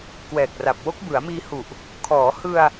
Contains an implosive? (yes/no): no